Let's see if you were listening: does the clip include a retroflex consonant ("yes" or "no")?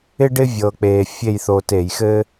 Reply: yes